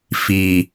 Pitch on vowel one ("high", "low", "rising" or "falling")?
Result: low